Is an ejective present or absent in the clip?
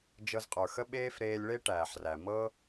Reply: present